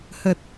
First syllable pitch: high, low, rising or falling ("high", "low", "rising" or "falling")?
low